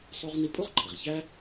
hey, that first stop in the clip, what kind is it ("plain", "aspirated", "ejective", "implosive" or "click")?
ejective